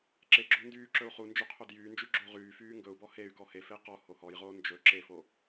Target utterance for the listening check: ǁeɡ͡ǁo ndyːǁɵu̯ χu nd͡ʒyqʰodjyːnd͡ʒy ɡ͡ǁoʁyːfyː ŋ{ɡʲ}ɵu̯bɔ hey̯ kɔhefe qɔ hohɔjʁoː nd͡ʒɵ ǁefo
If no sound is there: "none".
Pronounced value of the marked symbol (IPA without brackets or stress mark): ɡ